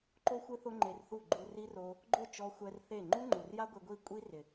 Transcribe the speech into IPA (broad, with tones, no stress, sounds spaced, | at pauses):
ǃ o˦ xʷ ɪ˦ θ ʊ˦ ŋ͡ǃ e˧ r θ u˦˨ ɡ͡ǃ u˧ r i˦ r o˧ | ɡ͡ǃ ʊ˦˨ t͡ʃ ɔ˧ xʷ ɛ˧ r θ e˦˨ ŋ͡ǃ u˦ ŋ͡ǃ u˨ r j a˦ ɡʷ e˧ ɡʷ i˦˨ kʷʼ i˦ r ɪ˨